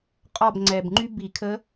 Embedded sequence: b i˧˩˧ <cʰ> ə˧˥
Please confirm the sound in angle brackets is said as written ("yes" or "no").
no